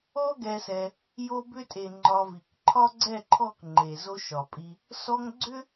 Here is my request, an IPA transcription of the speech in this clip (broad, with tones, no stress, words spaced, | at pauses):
ɔ˦ɡɛ˧sɛ˧ | jo˧bʏ˧tʼe˨ ŋ͡ǃɒ˧vi˨k ǃʰɒ˦ɡ͡ǀɛ˦˨ǃʰɔ˦˨k ŋ͡ǃe˨zo˧ʃɒ˨pʼi˧ | sɔ˧ŋ ɡ͡ǀʏ˦